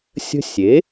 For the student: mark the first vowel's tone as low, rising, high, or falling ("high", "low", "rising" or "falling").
high